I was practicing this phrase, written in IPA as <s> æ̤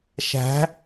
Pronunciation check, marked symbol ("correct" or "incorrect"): incorrect